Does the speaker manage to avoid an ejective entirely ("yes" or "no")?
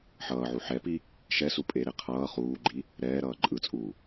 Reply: no